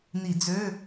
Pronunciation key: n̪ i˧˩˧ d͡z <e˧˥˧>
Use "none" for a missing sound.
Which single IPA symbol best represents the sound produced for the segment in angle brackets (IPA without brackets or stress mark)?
ø˧˥˧